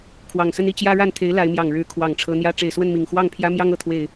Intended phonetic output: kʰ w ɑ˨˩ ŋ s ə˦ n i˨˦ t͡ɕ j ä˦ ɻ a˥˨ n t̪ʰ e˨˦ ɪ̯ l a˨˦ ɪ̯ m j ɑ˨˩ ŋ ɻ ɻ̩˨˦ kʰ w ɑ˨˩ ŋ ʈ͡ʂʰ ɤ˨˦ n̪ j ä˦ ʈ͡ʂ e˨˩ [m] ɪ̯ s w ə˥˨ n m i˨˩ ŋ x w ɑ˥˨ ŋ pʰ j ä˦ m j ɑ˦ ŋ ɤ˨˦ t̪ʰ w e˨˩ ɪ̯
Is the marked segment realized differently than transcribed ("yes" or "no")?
yes